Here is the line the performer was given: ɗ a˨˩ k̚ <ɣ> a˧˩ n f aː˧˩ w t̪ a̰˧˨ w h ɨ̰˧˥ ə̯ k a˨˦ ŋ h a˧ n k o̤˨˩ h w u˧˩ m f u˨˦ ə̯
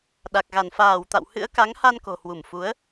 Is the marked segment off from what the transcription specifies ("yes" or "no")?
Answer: no